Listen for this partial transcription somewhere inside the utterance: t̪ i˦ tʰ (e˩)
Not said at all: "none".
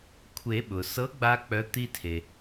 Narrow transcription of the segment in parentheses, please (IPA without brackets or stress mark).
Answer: e˩